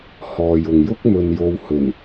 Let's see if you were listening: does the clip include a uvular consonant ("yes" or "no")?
no